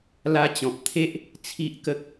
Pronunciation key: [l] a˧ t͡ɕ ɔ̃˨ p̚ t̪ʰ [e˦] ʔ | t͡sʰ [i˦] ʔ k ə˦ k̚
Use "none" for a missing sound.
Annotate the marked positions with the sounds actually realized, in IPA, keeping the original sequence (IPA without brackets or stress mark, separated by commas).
l, e˦, i˦